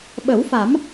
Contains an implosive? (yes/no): yes